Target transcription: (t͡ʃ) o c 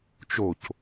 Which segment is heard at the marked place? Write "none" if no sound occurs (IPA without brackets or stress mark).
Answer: t͡ʃ